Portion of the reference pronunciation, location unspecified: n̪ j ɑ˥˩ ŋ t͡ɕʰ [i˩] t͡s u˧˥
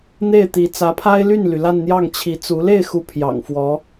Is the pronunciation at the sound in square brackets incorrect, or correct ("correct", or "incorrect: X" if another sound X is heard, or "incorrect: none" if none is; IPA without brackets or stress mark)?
incorrect: i˧˥